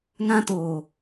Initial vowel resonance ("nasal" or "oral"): nasal